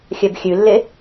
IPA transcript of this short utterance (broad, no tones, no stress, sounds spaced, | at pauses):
xʲ œ b xʲ ʉ lː e